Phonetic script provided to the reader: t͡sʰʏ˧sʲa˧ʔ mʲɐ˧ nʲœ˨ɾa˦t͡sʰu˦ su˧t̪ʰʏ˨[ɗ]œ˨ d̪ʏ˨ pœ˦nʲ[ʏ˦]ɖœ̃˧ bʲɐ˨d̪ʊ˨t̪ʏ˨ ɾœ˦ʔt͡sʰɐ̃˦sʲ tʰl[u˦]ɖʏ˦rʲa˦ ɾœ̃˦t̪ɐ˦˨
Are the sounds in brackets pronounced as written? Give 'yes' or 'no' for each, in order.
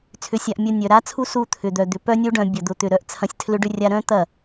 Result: no, no, no

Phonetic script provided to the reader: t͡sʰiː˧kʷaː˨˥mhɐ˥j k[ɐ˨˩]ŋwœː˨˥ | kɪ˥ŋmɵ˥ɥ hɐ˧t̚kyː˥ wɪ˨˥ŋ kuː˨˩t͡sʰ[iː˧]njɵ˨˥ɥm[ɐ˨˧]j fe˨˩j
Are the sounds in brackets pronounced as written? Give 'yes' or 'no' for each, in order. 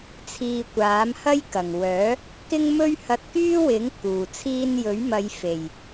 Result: yes, yes, yes

